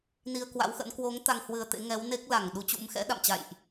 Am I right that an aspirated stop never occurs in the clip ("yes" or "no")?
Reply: yes